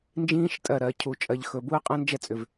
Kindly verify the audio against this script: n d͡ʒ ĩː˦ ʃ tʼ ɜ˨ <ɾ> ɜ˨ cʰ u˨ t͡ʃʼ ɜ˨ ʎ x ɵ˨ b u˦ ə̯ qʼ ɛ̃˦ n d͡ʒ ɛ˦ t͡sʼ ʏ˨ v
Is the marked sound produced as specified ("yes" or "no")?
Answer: yes